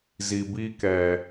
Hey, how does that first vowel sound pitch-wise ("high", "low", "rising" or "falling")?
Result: low